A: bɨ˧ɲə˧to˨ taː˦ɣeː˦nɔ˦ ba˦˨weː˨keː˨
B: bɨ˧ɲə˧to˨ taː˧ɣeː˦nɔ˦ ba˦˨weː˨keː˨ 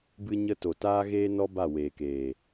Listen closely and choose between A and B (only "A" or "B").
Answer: A